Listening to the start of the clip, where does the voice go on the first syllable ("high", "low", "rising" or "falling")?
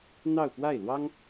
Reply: falling